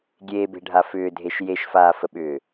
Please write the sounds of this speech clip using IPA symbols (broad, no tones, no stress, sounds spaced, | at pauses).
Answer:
ɡʲ eː b e̤ ɖʱ a f ʏː dʱ e ʃ j e ʃ f aː f ə ɓ ʏː